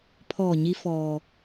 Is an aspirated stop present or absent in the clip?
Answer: present